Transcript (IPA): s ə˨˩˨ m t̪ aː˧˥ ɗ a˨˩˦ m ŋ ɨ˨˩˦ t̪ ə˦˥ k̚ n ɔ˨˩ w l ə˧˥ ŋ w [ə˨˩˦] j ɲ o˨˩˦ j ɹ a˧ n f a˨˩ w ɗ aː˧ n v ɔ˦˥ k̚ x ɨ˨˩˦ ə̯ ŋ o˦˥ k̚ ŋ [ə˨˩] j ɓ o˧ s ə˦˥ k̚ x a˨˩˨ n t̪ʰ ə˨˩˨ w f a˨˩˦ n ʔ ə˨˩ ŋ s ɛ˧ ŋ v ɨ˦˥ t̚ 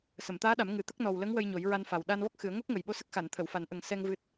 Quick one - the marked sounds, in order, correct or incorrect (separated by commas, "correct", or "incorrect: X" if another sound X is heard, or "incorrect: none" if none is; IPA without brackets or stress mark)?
incorrect: ə˧, correct